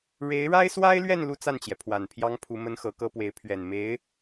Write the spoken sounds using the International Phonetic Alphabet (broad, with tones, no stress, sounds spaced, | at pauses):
ɻ e˧˥ ɪ̯ ɻ a˥ ɪ̯ s w a˥ ɪ̯ l ɥ ɛ˥˧ n l u˥˧ t͡s a˥˩ n t͡ɕ j ɛ˩ pʰ w a˨˩ n pʰ j ɑ˥ ŋ pʰ u˧˥ m ə˥ n x ɤ˧˥ k ɤ˥ p w e˧˥ ɪ̯ pʰ ɥ ɛ˨˩ n m e˧˥ ɪ̯